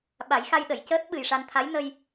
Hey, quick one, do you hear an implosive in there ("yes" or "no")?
yes